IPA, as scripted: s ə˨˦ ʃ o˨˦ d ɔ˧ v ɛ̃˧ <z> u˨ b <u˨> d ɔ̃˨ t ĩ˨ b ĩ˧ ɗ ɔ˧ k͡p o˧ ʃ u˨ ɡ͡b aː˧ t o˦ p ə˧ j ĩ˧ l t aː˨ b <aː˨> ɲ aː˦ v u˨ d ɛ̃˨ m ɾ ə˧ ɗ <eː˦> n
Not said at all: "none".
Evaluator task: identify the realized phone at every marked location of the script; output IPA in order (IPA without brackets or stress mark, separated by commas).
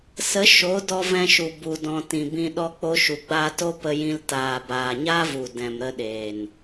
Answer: ʃ, u˨, aː˨, eː˨